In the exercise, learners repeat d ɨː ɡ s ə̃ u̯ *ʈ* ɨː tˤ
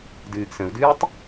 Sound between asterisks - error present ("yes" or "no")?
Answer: yes